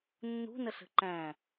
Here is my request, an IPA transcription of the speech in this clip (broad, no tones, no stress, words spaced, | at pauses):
nːṳnəɬə̤ ǃæ̃